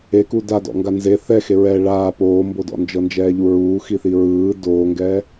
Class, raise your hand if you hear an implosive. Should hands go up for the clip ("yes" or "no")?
no